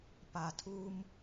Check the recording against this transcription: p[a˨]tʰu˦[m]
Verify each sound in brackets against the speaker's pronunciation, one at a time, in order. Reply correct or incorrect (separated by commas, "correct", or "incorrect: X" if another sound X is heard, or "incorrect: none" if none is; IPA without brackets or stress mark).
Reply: correct, correct